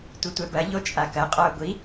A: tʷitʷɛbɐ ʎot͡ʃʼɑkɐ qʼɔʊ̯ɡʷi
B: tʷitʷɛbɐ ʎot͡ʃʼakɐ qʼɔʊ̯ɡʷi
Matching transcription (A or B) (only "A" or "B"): B